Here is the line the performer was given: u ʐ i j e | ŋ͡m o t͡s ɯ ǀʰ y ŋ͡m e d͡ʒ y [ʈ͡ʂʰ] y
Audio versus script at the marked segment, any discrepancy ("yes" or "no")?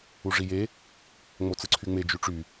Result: yes